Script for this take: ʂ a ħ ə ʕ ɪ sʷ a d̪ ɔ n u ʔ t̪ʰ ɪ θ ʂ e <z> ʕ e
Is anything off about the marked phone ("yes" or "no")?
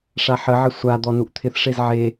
no